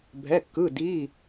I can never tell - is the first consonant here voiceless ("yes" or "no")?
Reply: no